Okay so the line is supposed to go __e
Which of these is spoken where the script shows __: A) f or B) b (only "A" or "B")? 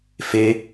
A